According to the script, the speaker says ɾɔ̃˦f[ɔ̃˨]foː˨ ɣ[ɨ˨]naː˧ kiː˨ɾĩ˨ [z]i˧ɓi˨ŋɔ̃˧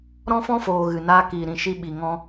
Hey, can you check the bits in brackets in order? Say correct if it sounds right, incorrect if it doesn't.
incorrect: ɔ̃˦, correct, incorrect: ʃ

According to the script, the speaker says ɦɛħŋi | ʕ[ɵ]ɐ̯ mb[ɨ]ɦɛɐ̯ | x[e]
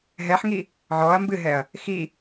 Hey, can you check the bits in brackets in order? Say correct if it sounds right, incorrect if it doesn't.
incorrect: ɔ, correct, incorrect: i

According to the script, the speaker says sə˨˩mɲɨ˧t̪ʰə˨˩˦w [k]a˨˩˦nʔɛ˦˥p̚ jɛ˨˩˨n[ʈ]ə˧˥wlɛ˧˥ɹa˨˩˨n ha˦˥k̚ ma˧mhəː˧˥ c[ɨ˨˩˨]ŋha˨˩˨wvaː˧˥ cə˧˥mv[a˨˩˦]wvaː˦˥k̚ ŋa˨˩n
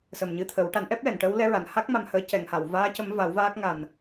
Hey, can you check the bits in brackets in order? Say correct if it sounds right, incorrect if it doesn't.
incorrect: ʈ, correct, incorrect: ɛ˨˩˨, correct

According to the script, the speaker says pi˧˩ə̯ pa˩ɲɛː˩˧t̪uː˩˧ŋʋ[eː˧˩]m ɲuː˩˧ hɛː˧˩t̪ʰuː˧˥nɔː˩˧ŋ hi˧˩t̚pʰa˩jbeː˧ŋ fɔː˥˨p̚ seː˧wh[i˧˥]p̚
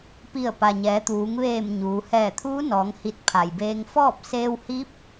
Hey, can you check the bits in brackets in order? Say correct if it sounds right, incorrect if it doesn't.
correct, correct

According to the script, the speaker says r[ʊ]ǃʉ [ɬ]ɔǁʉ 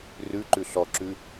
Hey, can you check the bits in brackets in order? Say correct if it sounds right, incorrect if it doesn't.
incorrect: ʉ, correct

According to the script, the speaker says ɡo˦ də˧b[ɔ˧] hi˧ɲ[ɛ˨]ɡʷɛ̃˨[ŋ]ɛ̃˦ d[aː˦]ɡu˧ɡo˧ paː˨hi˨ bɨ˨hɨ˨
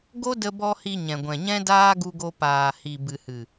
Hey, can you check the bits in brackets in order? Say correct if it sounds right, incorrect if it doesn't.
correct, incorrect: ɛ̃˨, incorrect: ɲ, correct

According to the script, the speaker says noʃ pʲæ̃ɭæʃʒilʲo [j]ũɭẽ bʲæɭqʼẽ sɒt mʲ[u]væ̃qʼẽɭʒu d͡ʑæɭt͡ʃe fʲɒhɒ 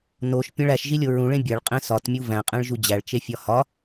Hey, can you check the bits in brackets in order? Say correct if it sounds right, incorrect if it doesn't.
incorrect: ɹ, correct

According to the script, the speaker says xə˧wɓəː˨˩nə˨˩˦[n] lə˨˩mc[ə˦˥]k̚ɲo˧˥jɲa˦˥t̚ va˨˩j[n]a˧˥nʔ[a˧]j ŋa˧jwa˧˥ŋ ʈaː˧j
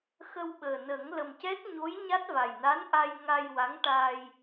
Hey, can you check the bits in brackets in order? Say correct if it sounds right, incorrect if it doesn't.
incorrect: ŋ, incorrect: ɛ˦˥, correct, correct

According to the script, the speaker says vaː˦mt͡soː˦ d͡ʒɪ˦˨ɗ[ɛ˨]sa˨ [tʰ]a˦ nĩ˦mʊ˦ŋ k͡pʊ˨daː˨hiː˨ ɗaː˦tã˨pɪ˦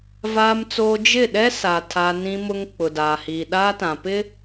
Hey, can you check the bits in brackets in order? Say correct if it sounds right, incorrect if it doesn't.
incorrect: ɛ˦, correct

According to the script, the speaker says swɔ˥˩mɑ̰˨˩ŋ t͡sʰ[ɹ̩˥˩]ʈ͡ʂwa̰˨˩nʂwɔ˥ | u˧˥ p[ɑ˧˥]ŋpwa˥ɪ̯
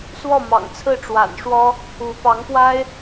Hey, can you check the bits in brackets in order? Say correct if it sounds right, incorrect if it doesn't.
correct, correct

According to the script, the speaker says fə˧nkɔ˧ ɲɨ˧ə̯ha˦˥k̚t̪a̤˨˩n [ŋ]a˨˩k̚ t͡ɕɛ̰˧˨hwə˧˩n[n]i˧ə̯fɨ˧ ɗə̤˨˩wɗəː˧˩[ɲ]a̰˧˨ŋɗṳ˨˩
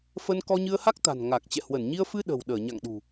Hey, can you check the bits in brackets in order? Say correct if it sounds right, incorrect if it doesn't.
correct, incorrect: ɲ, correct

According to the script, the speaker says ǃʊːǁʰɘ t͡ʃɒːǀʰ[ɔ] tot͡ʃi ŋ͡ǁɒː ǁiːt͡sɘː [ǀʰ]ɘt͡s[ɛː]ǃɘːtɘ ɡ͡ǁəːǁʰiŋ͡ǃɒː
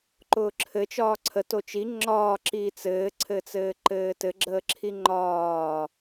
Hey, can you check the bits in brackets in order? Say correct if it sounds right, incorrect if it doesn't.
incorrect: ə, correct, incorrect: ɘː

